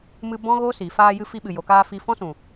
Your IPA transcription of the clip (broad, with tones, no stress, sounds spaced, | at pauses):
m ɨ˧ b ɔ̃˦ ɣ oː˦ s iː˨ f aː˧ j ɨ˧ f i˧ ɓ ɨ˨ j o˨ k aː˧ f i˧ f ɔ̃˦ s ũ˨